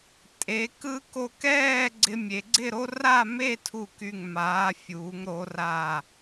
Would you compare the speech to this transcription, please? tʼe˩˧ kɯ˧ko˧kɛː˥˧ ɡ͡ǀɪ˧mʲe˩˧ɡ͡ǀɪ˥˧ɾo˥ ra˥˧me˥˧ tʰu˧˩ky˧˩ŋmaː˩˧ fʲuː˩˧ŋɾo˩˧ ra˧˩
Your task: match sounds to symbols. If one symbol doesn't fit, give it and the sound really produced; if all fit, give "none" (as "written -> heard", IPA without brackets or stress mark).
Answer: none